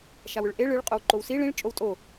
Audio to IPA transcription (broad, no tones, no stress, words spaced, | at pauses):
ʃawʏɭʔe ɭɨɭ qʼowǃowsi ɭĩɭ t͡ʃʼowtʼo